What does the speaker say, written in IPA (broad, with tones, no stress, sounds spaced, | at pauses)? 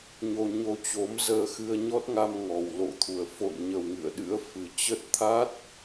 ɲ o˧ ɲ o˧ t͡ɕ o˨˦ m z əː˧ x ɨ˧ ə̯ ɲ ɔ˦˥ t̚ ŋ a˧ m ŋ ɔ˨˩ w l o̰˧˨ t̪ʰ u˨˩ ə̯ f o̰˧˨ n ɲ ə˨˩ w ŋ ɨ̰˧˨ ə̯ ɗ ɨ̰˧˥ ə̯ f ɨ˨˩ t͡ɕ ə˦˥ t̚ t̪ʰ a˦˥ t̚